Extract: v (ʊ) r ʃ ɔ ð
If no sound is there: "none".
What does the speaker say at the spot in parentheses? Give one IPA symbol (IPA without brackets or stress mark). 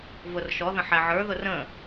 ʊ